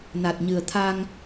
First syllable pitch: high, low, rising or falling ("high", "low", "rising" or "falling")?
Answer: low